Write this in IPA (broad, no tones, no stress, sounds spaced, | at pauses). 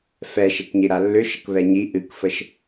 f ɛ ʃ ɛ k ɲ i ɾ a lː ʏ ʃ ə k β ɛ ɲ i ʔ ɨ k f ə ʃ